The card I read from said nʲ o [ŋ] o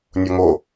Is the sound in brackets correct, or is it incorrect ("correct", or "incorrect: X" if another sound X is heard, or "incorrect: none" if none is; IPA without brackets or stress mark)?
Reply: correct